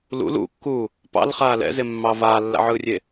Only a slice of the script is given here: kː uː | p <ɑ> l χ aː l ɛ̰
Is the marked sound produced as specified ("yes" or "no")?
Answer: no